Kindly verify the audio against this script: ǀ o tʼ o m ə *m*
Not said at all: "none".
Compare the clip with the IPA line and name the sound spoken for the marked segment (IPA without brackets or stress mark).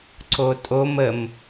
m